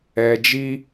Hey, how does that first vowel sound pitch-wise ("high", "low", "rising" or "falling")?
low